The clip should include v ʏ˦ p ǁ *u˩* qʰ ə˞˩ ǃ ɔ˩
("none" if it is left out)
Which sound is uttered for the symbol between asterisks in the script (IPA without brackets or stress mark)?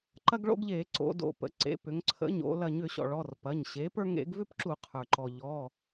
u˧˩˧